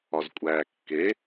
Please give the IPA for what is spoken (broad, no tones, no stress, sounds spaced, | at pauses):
ɒ z kʷʼ æː kː e